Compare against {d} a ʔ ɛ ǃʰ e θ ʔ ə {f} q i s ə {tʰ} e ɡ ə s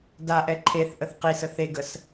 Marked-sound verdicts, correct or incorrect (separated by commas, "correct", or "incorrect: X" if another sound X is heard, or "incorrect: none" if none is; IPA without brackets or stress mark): correct, incorrect: θ, incorrect: θ